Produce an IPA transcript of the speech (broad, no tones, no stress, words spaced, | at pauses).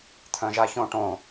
t̪ʰœ̃ʒaçõʈõ